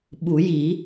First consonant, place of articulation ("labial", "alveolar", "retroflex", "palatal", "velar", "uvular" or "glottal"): labial